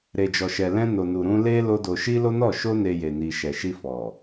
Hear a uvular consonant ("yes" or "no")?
no